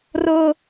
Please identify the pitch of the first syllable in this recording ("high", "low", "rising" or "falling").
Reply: high